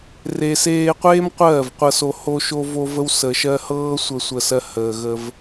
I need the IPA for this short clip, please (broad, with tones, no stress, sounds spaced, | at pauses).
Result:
r e˨ s eː˧ qʷ eː˦ m qʷ ɜː˦˨ v qʷ ɤ˧ s o˧ h o˦ ʃ o˦ v o˦ v ə˦ w s əː˨ ʃ ɜ˧ h ɤː˦ sʷ ə˧ sʷ ə˧ s ɜ˧ h əː˨ ɣ ə˧ v